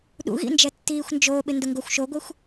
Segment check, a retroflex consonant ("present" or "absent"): absent